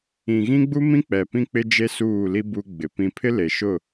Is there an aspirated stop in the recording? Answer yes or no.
yes